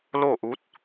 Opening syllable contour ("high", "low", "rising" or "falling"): falling